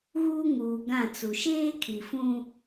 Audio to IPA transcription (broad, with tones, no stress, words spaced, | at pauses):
ɣuː˦ŋuː˨ ɡã˦˨t͡su˨ ʃeː˦kʰi˨fũ˦